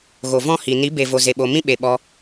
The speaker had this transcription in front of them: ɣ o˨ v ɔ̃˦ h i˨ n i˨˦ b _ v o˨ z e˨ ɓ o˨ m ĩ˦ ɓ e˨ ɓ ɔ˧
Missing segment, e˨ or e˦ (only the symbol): e˨